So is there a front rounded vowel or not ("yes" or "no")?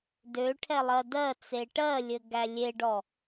yes